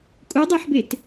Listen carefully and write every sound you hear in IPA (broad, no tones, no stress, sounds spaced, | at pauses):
kʼ u dˤ æ ħ b e t